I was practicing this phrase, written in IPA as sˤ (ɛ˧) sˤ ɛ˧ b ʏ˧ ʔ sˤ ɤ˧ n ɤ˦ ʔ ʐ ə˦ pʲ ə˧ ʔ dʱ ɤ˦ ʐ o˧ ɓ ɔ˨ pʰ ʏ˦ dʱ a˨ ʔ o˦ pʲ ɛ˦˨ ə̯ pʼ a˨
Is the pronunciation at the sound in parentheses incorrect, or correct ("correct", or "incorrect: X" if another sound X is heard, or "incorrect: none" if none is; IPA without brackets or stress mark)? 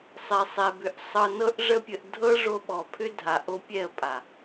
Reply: correct